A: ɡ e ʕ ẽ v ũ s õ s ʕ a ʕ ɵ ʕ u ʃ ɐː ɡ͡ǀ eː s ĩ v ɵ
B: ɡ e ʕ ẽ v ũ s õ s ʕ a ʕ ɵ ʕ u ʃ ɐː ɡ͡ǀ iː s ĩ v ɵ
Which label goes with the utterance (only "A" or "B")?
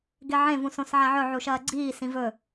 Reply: B